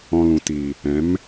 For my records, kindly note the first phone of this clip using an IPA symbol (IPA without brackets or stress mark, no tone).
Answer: ɔ̃